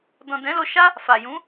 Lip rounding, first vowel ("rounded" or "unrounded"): rounded